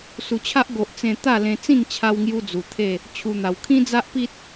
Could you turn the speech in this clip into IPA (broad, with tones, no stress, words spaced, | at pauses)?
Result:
su˨˩t͡ɕʰa˦ʔɡo˨ʔ t͡sẽ˧t̪a˥˧lẽ˧ t͡sĩ˥˧ŋ t͡ɕʰa˦wŋju˦ d͡zu˨˩t̪ʰe˥˧ | t͡ɕʰu˧n̪a˨˩w kʰĩ˦d͡za˦ʔpi˦t̚